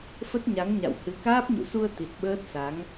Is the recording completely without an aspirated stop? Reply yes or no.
yes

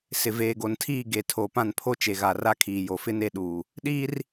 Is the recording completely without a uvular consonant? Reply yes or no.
yes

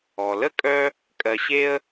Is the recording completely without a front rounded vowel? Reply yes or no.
no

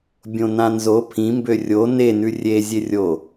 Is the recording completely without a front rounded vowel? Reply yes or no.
no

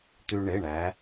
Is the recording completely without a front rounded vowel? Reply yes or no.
no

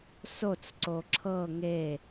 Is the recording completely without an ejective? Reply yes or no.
yes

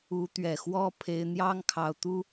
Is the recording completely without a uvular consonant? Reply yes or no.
yes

